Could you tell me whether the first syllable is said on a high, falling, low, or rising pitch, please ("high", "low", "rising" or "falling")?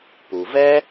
low